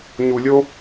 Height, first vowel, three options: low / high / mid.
high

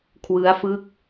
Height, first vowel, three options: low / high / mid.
high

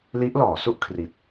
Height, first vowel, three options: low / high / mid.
high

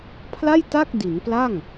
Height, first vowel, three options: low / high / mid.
low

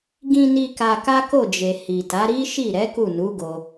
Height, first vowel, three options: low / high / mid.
high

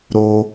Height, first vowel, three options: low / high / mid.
mid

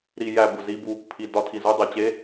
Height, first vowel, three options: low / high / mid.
high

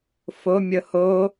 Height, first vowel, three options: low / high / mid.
mid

